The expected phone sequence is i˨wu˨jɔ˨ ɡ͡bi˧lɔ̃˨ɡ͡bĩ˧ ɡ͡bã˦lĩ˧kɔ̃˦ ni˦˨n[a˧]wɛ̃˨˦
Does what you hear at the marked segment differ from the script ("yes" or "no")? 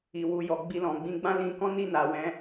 yes